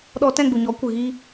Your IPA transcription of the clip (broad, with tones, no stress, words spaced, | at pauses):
ɗɔ˧tɛ̃˦˨ɡ͡bu˨ɲɔ˨˦ kʷɨ˨ɣiː˧